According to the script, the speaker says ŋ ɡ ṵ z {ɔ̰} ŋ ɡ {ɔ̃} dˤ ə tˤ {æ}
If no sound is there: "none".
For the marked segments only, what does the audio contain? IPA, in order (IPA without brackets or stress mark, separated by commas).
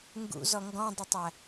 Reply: ɔ, ɔ̃, æ